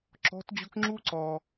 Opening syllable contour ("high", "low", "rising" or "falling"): rising